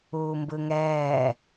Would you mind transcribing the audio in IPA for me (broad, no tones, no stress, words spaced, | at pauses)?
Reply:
uːmbɯŋɛː